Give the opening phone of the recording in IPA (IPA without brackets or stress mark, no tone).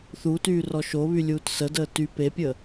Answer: θ